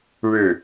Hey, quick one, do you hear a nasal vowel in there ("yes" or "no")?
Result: no